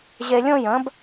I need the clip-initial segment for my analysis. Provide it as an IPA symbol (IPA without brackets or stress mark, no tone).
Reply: ʑ